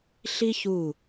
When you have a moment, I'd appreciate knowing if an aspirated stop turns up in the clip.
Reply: no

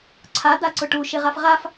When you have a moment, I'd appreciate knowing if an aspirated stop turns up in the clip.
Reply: yes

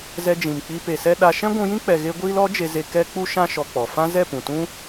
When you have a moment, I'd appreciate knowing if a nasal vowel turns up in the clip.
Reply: yes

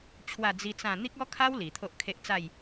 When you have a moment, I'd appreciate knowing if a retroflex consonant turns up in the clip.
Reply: no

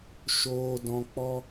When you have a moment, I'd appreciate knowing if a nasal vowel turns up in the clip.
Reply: yes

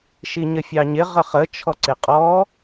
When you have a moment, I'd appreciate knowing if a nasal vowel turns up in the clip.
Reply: no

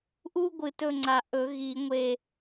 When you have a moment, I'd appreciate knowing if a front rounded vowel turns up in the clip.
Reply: no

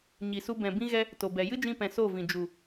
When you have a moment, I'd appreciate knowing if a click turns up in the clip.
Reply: no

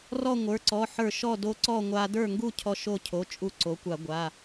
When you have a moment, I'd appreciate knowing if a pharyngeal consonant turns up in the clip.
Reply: yes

